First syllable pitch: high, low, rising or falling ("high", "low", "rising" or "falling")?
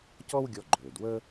high